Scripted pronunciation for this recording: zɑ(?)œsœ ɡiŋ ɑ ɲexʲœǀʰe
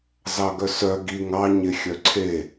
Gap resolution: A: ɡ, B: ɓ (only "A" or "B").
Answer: A